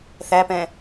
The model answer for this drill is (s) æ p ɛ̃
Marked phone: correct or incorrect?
incorrect